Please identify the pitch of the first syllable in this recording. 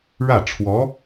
falling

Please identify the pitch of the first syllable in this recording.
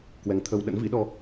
rising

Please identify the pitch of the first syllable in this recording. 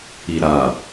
low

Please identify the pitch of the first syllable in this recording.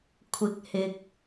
rising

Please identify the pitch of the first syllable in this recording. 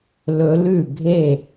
rising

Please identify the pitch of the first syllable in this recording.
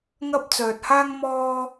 high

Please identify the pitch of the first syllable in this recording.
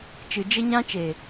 low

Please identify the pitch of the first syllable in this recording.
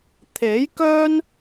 rising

